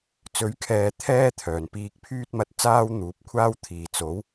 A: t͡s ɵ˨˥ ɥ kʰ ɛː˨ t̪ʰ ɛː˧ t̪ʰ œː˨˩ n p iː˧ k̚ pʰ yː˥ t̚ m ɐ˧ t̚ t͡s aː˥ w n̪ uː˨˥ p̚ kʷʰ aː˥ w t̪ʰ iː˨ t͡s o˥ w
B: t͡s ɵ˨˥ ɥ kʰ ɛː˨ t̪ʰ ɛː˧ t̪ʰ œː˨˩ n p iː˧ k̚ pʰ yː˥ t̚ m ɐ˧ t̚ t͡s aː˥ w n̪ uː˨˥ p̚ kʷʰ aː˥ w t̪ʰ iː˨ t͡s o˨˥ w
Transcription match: B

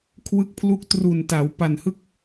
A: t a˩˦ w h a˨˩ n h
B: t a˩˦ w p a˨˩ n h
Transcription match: B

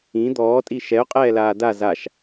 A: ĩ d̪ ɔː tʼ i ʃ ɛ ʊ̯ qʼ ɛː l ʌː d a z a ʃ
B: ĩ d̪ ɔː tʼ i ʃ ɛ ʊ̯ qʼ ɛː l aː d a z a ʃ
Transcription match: B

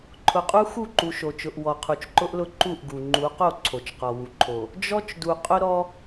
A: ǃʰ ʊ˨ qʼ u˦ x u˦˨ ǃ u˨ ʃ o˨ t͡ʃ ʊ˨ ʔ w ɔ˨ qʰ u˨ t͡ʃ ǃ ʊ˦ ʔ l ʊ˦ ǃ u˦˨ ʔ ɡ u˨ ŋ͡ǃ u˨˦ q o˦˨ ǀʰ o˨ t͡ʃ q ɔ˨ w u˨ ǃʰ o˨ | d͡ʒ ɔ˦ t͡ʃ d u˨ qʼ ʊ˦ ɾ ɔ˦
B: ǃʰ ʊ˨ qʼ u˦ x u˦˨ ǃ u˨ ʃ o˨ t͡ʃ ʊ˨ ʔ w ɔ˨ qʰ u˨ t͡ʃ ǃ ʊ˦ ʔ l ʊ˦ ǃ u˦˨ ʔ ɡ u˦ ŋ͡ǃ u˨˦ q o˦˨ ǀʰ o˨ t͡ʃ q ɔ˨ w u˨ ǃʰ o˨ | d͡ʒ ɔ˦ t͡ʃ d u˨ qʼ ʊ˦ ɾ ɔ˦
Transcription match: A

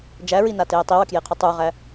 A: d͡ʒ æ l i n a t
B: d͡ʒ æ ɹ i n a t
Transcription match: B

